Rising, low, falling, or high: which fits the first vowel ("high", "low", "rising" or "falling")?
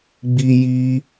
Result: high